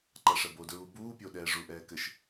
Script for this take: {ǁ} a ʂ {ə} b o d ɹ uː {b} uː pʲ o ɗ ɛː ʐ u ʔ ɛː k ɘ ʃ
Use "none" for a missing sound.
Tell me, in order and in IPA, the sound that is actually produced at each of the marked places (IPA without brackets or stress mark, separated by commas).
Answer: ǃ, ɐ, b